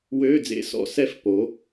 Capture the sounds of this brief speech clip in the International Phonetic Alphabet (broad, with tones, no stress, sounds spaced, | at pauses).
w øː˧˥˧ d͡z ḛ˧˥˧ s ɔ̰˧˥ s ɛ˧˥ f p o˩˧